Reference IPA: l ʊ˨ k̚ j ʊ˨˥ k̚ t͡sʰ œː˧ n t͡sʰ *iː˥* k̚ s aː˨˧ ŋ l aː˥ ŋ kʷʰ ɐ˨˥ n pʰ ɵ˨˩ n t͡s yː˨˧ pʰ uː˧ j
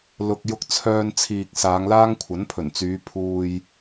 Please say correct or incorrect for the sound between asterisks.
incorrect